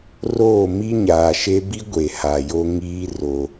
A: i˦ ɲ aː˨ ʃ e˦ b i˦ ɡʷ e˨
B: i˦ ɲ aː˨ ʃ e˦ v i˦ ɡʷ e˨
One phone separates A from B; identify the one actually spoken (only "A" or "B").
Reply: A